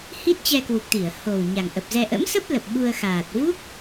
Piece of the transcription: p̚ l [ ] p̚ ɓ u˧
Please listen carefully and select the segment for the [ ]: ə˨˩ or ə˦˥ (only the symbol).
ə˨˩